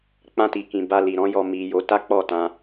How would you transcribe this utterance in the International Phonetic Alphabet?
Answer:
k͡p ã˧ t i˨ k ĩ˨ b a˧ l i˨ ɾ ɔ̃˨˦ j ɔ˧ m i˨ j o˨˦ t a˦ k͡p ɔ˦˨ t ã˧

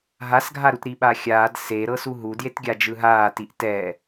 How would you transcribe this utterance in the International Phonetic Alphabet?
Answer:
ɦ a s ɡʱ a ɾ u t ɾ i ɓ a xʲ aː d s e ɾ ɤ s u ɦ u d j e t ɡʲ a d͡ʒ ɯ ɦ aː t i ʔ t ɛ

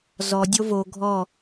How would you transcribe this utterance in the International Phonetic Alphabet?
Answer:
z ɔ dʲ o v o ɡʱ ɔ

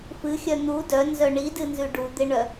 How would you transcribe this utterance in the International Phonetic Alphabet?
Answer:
f ɨ xʲ œ n̪ u d œ n z œ ɳ i d ɨ n z ʉ ɖ u d̪ ɪ ɳ œ

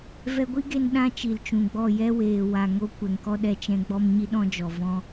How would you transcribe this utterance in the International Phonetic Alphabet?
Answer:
v ɛ˧ ɡʷ i˦ ɡ e˧ n ɗ ã˦ t͡ʃ i˨ l t͡ʃ ũ˨ ɡ͡b ɔ˦˨ j ɛ˦ w eː˨ w a˨ ŋ o˦ kʷ ɛ˨ ŋ k ɔ˦ ɗ ɛ˧ t͡ʃ ɛ̃˦ ɡ͡b ɔ˦ m ɲ i˦ ɗ ɔ̃˦ d͡ʒ ɔ˨ v ɔ̃˧

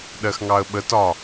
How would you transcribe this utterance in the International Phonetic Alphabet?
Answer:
ɗ ɜ x ŋ ɑ ə̯ ɓ ə t ɒ

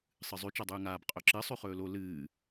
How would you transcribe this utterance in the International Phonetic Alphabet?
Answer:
sˤ ɨ zˤ ʉ t͡ʃ a dˤ ʉː ŋ aː b qʼ ɵ ǁ ɨ sˤ ʉ χ ɵː l o l ɨː

